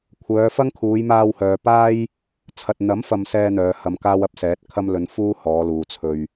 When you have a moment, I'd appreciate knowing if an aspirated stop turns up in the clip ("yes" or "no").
yes